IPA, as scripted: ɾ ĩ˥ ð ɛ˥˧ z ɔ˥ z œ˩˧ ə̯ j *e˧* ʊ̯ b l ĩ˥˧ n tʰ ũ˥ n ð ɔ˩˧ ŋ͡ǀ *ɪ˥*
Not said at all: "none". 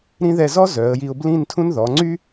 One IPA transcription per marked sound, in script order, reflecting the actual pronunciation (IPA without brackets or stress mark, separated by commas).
i˧, y˥